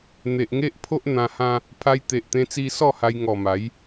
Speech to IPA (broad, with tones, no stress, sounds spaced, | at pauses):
n̪ e˨ ʔ ŋ e˦ ʔ pʰ o˦ ʔ n̪ ã˧ h ã˦ | pʰ a˧ j t̪ e˨ ʔ t̪ ẽ˧ t͡s i˧ s ɔ˥˧ h a˧ j ŋ ɔ˨˩ m a˨˦ j